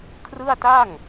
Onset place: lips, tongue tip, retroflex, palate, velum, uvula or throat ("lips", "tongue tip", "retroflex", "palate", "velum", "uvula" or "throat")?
velum